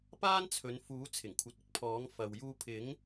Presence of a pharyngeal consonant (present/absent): absent